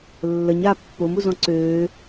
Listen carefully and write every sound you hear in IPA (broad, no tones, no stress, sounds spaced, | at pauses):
lː ə ɲ a pː o m u z ɔ̃ ǀ øː